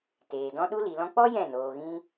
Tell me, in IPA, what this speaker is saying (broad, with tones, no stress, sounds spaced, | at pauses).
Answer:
t eː˨ d ɔ̃˦ ɗ u˦ l i˨ l ɔ̃˧ k͡p ɔ˦ j ɛ̃˦˨ n oː˨ ɣ ĩ˧